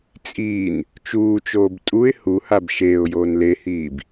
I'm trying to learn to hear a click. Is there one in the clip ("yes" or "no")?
no